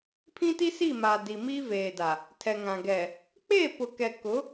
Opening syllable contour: high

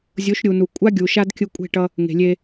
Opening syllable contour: rising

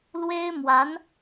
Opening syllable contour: high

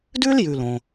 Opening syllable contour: high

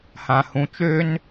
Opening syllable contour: low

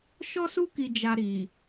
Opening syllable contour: high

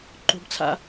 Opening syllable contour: high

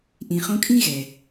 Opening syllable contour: low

